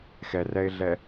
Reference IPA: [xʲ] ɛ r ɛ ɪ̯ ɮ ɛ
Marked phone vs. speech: incorrect: x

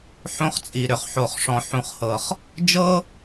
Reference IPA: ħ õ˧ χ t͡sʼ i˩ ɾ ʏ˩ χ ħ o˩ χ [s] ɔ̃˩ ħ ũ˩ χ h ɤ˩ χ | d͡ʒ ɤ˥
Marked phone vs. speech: incorrect: ʂ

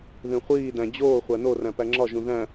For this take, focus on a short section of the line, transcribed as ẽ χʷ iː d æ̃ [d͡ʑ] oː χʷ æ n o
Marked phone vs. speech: correct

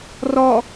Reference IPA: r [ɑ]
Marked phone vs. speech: incorrect: ɔ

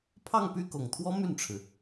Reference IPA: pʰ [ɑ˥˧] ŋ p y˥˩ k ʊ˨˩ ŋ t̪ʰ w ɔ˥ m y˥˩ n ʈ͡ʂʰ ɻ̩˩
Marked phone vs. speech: correct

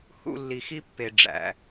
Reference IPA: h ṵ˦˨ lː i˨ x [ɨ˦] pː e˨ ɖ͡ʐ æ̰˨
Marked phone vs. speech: incorrect: i˦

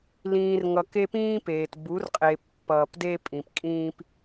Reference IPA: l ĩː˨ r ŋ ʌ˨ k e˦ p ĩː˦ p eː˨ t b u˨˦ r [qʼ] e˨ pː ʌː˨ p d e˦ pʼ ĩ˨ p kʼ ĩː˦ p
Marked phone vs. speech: correct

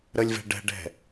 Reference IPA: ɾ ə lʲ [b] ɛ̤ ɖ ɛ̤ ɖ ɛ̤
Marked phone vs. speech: incorrect: v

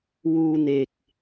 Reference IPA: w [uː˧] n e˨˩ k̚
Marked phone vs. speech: correct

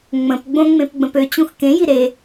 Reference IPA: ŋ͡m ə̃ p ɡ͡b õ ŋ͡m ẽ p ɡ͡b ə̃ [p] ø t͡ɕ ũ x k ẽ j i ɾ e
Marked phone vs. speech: correct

